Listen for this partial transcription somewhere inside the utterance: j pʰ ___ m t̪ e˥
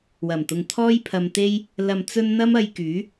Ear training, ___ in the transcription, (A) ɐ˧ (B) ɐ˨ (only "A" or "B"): A